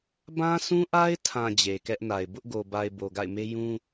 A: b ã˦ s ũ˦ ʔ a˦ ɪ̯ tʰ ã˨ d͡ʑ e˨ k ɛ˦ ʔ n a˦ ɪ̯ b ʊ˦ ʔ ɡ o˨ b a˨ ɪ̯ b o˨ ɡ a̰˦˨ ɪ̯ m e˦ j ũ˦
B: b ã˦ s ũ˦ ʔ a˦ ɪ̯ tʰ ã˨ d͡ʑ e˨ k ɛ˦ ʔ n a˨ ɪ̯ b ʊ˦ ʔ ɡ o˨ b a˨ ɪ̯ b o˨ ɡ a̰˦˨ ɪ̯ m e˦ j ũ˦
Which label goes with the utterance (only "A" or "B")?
B